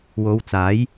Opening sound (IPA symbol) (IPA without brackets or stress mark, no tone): w